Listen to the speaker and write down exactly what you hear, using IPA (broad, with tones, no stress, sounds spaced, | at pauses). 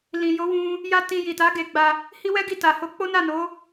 l ĩ˨ j o˨˦ w ũ˧ | j a˦ t ĩ˧ j i˨ t a˨˦ ɡ e˧ ɡ͡b a˧ | h i˦ w ɛ˦ ɡ i˦˨ t a˨ h o˧ k͡p o˦ n a˦˨ n o˨˦